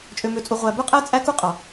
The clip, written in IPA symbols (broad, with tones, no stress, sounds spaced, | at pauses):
t͡ʃʼ ø˨ m ø˨ t͡sʼ u˨ ʁʷ æ˨ b ø˦ qʼ æ˦ t͡sʼ æ˦ k u˦ qʼ ɑ˨